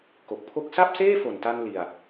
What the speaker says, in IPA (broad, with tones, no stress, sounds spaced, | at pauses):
k o˨˩ k̚ pʰ o˥˩ k̚ s a˥˩ p̚ s eː˥˩ f o˨˩ n t a˧ n l i˧ a̯